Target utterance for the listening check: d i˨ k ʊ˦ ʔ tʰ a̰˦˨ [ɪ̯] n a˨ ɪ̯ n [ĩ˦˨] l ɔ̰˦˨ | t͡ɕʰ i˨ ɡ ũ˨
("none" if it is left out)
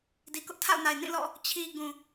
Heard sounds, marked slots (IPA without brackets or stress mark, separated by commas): ʊ̯, ĩ˦˨